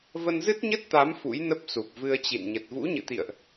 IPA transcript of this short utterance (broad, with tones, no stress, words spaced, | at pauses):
və˧nzɨ˦˥t̚ɲə˦˥t̚t̪a˨˦m fṵ˧˥jnə˦˥p̚ su˨˩p̚vɨ˧ə̯t͡ɕḭ˧˨n ɲə˨˩t̚vṵ˧˥ɲɨ̰˧˨t̪ḭ˧˨ə̯ʔ